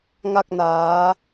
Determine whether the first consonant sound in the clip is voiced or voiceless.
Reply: voiced